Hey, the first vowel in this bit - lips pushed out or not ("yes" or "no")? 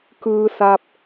no